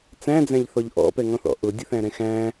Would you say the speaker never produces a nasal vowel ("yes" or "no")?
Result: no